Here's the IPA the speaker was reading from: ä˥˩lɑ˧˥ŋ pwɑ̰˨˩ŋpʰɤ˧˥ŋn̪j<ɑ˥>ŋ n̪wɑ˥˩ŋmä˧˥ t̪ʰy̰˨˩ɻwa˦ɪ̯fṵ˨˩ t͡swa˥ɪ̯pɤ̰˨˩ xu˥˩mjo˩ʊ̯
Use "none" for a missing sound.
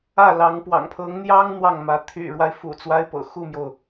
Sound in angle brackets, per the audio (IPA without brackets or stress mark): ɑ˥